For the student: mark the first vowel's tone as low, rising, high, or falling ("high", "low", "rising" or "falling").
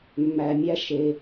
low